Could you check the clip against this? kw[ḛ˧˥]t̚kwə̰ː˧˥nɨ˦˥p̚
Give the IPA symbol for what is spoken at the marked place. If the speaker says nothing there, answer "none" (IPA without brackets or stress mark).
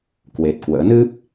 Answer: e˨˩